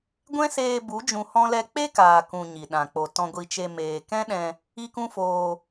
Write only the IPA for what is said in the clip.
ɡʷ ɛ̃˦ s eː˧ b u˨˦ d͡ʒ ũ˧ h ɔ̃˦ l ɛ˦ k͡p e˦ k aː˨ k ũ˨ ɲ i˨ ɗ ã˨ k͡p o˨ t ɔ̃˧ ɡʷ i˧ t͡ʃ e˧ m eː˨ k ɛ̃˦ ɗ ɛ̃˧ | i˦ k ũ˦ f oː˧

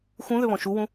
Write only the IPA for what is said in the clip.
x ũ ð ʏ β ɔ̃ ʃ u w ũ

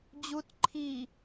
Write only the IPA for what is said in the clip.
d͡ʑ u t ǃʰ i

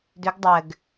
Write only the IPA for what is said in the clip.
d ʏ ɡ dˤ ɘ ɡ

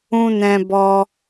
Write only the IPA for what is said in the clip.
ũ˧ n ɛ̃˧ b ɔ˧

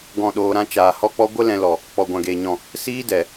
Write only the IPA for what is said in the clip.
ɡ ɔ̃˦˨ ɗ oː˧ ɾ ã˦ t͡ʃ aː˨ h ɔ˦ k͡p ɔ˦ ɡʷ ə˦ l ɛ̃˧ l ɔ˨ | k͡p ɔ˨ ɡʷ ã˨ ɡ eː˨ ɲ ɔ̃˨ | s iː˦ d ɛ˨

